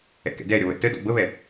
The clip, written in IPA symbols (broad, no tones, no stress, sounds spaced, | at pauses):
ɛ̰ k ɛ̰ d ɛ ɾʲ ɔ β ɛ̰ t ə d ɔ̰ b ə β ɛ